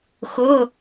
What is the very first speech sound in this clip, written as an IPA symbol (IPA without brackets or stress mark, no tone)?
x